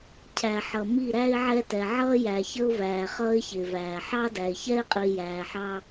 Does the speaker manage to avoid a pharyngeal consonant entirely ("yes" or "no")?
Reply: no